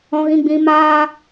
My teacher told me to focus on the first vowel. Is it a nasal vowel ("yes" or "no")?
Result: yes